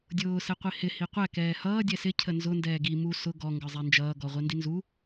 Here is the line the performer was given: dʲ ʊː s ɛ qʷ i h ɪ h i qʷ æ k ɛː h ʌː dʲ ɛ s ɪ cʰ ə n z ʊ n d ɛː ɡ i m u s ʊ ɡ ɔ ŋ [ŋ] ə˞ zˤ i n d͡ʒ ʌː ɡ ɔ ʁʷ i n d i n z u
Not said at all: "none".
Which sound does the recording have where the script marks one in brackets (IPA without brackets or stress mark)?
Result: ɡ